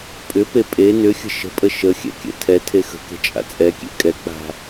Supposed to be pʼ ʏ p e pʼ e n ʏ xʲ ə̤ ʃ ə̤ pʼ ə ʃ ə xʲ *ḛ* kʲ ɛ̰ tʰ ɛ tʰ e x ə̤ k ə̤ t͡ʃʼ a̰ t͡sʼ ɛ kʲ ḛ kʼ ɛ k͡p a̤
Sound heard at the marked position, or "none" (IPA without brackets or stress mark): ɛ̰